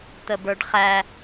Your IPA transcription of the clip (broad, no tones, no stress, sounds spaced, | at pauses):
t̪ ə b ə˞ ɖ χ æ